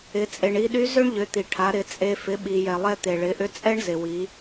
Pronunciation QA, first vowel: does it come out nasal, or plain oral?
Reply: oral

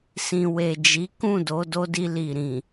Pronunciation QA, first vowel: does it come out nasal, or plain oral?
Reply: nasal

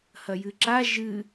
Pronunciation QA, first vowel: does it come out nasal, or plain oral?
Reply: oral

